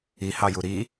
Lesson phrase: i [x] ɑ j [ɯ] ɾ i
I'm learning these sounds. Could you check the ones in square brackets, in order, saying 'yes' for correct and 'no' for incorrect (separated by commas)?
no, no